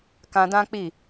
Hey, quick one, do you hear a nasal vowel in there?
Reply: yes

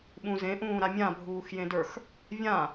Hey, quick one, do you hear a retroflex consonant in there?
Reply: no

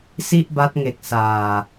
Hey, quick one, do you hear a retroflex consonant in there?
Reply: no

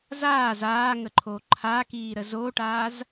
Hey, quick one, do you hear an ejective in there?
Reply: no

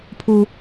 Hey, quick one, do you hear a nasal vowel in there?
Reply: no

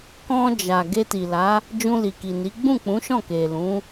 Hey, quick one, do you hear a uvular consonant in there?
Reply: no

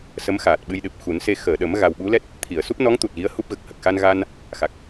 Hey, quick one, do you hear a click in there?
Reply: no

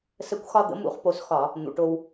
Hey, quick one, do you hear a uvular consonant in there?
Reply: yes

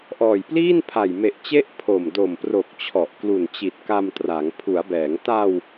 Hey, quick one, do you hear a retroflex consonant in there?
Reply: no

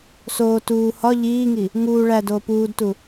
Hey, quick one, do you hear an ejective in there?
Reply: no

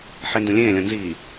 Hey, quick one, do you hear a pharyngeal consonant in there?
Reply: yes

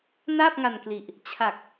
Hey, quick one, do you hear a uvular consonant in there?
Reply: no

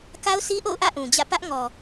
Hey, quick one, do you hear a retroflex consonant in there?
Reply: no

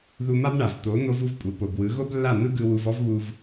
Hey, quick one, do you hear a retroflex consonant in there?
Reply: yes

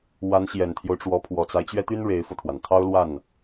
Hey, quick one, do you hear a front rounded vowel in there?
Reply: yes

